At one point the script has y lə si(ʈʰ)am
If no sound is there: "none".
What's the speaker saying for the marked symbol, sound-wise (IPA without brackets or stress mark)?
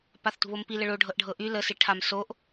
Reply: ʈʰ